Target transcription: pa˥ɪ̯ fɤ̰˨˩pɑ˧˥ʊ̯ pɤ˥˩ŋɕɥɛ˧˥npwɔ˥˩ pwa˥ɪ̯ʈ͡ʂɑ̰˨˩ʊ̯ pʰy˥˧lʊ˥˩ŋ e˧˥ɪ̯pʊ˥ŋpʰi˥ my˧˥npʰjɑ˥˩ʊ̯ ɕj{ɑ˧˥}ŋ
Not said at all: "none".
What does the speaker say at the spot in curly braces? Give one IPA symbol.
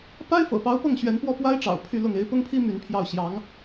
ɑ˧˥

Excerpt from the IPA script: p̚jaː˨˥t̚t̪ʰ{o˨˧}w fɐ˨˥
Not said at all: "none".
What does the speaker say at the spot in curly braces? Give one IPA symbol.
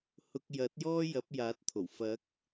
o˨˩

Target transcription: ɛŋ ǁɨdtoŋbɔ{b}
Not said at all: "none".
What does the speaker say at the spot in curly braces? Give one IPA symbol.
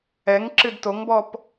p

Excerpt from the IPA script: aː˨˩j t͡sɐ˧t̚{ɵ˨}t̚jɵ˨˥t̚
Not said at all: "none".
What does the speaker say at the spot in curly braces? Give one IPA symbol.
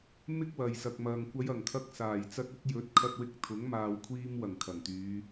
ɵ˨˥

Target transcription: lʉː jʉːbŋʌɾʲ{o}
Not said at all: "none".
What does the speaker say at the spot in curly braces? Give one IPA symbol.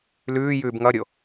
o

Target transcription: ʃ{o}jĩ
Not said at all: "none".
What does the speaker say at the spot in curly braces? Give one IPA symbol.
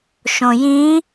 õ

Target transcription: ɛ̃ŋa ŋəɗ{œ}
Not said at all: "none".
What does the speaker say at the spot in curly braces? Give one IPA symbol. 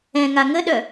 œ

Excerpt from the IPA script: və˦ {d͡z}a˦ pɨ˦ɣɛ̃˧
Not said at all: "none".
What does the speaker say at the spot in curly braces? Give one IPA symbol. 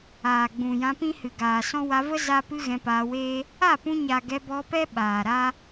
z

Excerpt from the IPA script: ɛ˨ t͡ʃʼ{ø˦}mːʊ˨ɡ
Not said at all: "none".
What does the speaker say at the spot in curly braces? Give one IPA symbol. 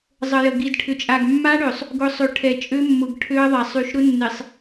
ø˦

